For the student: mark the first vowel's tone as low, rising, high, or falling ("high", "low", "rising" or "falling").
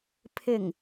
low